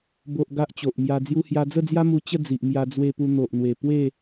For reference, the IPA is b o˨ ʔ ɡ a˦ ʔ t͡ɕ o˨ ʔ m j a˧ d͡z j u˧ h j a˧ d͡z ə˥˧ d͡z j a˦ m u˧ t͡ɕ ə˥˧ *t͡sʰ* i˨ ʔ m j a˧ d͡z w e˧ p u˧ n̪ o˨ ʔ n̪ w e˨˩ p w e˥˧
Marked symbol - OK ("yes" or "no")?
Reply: no